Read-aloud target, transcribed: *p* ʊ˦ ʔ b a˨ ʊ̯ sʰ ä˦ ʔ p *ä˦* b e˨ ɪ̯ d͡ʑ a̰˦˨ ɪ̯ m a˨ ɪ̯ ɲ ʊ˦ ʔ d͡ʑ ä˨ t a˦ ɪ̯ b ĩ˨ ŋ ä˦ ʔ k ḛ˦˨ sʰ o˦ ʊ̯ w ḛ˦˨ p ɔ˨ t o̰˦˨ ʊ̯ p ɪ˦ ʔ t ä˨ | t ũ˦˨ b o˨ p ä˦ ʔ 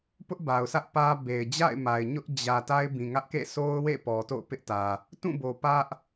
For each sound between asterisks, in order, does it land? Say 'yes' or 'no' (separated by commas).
yes, yes